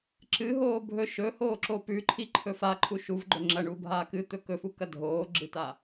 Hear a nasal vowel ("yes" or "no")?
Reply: no